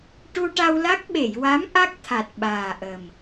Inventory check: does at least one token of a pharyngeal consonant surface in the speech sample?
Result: no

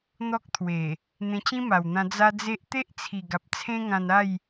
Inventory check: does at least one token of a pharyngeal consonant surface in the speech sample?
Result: no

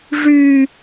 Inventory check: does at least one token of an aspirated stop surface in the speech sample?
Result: no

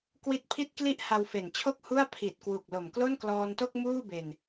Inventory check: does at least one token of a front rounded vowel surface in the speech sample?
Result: no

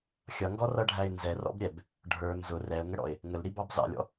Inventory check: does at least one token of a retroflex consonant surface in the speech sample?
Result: yes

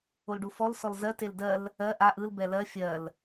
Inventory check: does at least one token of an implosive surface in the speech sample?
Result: no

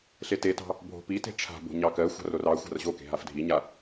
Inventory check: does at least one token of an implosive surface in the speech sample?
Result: no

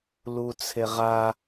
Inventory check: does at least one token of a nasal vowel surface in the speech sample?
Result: no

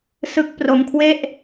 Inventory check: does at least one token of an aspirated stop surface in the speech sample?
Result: yes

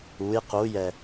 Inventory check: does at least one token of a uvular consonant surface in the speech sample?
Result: yes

